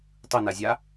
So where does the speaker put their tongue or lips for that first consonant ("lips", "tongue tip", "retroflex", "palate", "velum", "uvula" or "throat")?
tongue tip